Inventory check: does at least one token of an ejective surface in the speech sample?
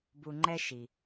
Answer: no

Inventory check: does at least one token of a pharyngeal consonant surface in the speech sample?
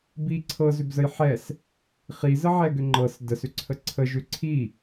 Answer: yes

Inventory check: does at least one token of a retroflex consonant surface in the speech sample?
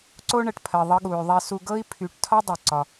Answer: yes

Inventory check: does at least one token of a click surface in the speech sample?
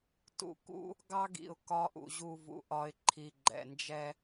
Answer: yes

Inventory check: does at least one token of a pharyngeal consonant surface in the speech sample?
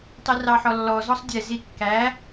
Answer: yes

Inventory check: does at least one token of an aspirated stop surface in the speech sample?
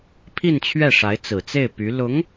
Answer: yes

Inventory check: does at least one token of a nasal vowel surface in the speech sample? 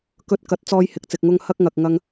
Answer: no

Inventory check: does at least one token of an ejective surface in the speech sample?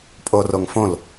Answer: yes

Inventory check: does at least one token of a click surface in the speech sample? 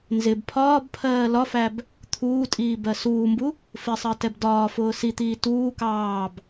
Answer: no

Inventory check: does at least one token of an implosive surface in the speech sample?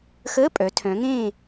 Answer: no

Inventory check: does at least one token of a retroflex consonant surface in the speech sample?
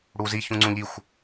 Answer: yes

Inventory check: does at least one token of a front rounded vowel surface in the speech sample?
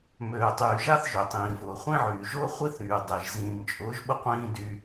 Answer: yes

